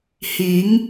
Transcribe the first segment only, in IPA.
h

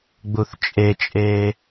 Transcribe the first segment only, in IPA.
ɡ͡b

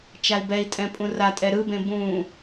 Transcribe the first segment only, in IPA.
t͡ʃ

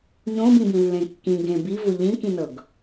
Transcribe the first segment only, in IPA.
ɲ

